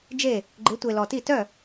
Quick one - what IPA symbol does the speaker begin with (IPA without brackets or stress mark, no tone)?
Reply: d͡ʒ